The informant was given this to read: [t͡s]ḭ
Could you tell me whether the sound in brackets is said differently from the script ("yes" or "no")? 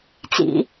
no